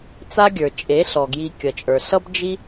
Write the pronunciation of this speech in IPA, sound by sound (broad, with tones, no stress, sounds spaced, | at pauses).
t͡s a˦ ɡʲ ə˞˨ t͡ʃʼ e˨˦ ɬ ɔ˨ ɡ j i˧ kʲ ʌ˨ t͡ʃʼ ə˞˨ ɬ ʌ˦ b d͡ʒ i˦